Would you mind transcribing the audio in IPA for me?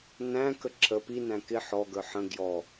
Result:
næ̃kə ǁʰə pinæ̃ kɪ ħɔɡə˞ ħə̃ ɡjɔ

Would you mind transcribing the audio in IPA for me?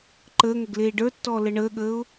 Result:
ǃəːŋəɡ leːɖə˞tːɔː ləɳəːɠəːʊ̯

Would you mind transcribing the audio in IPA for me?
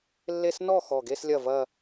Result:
lːe˥˧s nɔ˥˩ xɔ˧˩ɡe˥˧slʲɐ˥˩ vɐ˥˧

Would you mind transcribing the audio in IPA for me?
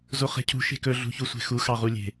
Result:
zoχe̤cʰṳ ʃe̤kɵ ɮṳçusʷe̤xu xɑʁulʲe̤

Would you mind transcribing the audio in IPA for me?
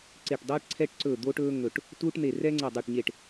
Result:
ǀe˦˨ʈdˤɛː˥ʈǀʰɛ˥ʈǀɵː˦˨ d̪oː˥ʈɵː˥ ŋɵ˦˨ʈ | tuː˥ʈn̪e˦˨ rɛː˥ŋ͡ǀɛ˦˨dˤɵː˦˨ʈɲe˦˨ʈ

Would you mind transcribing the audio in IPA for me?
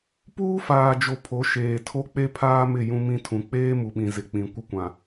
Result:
puː˦faː˨d͡ʒo˨ pʰo˨˦ʃeː˨ tʰo˦k͡pe˦pʰaː˦mɪ˦˨ jũ˦mĩ˦ tʰũ˨k͡peː˦mu˨ɓĩ˨ zɪ˨k͡pĩ˨ kʷɪ˦kʷã˨

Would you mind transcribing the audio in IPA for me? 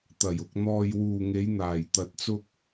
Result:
t̪ɐ˨˩j ʊ˨k̚n̪ɔː˨j wuː˨ŋe˨˧j n̪aː˨˩jt̪ɐ˨t̚t͡sʊ˧k̚

